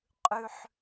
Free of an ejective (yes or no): no